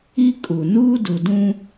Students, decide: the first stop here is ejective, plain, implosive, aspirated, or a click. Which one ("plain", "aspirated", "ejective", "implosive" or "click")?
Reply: ejective